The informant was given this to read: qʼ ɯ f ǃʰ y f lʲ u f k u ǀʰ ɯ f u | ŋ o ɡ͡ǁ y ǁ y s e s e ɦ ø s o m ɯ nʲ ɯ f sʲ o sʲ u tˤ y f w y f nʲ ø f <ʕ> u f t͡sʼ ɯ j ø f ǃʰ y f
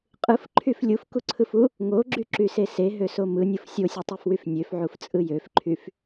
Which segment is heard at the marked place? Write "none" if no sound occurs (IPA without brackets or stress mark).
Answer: ʕ